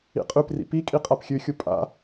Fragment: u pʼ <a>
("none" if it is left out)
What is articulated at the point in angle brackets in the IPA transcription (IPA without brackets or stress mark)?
a̰